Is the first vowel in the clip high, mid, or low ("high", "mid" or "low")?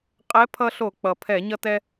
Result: mid